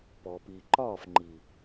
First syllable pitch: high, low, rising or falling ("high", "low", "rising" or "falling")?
low